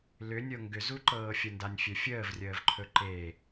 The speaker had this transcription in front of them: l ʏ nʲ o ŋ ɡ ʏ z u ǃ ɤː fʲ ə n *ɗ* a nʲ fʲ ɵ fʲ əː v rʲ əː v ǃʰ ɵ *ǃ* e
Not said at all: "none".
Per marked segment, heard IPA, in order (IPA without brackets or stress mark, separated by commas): d, ǃ